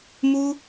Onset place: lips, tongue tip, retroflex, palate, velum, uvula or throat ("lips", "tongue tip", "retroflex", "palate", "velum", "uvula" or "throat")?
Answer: lips